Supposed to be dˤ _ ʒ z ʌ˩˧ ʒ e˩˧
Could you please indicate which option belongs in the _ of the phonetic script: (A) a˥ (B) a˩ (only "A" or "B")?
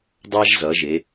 A